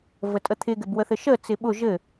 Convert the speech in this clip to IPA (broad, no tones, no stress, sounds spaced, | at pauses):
v ə tʼ ə t̪ʰ ɪ ɡ ɘ b w ə θ ɘ ʃ ə t͡s ɪ ɓ ʊ ʒ ɘ